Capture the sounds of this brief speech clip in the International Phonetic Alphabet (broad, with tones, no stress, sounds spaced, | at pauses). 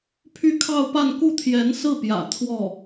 pʰ y˥˧ kʰ ɑ˥˧ ʊ̯ p a˥˧ n k u˥˩ t̪ʰ j ɛ˧˥ n s ɹ̩˥˩ p j ä̰˨˩ t̪ʰ w ɔ˥˩